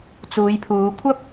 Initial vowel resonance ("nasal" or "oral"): oral